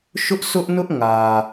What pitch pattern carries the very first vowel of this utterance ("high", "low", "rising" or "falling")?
high